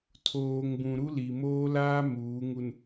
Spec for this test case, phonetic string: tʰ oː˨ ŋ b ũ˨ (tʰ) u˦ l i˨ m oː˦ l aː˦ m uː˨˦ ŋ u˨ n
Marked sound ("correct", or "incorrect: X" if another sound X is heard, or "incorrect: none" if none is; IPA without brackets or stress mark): incorrect: ɾ